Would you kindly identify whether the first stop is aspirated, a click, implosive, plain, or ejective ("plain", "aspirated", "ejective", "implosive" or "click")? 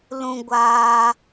plain